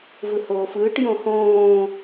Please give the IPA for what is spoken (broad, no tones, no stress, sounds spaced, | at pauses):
v ɯ h oː f ɯː ʈ j õ h õː